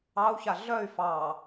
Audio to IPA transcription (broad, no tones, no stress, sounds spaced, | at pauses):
ɑ u̯ ç a ɮ œ y̯ f ɑ